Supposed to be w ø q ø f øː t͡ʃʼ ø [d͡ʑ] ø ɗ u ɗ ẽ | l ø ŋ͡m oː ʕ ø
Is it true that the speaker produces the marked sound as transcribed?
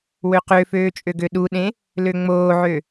no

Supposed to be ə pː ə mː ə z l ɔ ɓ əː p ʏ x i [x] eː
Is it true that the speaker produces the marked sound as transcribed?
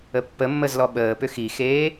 yes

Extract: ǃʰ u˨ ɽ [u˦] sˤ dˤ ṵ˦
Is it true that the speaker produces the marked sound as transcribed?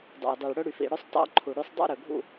no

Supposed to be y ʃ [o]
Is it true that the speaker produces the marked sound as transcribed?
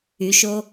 yes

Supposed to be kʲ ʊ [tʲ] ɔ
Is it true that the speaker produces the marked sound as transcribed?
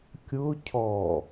no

